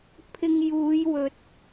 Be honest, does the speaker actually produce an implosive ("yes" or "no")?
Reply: no